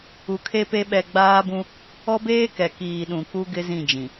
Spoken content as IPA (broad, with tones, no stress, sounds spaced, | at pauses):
u˨ kʰ e˦ p e˦ ɓ ɛ˨ ɡ͡b aː˦ b ũ˦ | ɔ˦ b eː˦ k ɛ˨ k iː˨ ɗ ũ˨ k u˦ ɡ ɪ˦ z ĩ˦˨ d͡ʒ ĩ˨